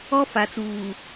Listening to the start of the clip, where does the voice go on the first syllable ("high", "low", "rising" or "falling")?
high